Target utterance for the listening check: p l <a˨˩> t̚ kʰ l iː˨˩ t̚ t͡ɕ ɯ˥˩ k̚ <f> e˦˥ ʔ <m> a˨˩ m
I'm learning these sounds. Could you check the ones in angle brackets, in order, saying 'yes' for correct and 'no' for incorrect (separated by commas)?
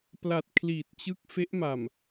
yes, yes, yes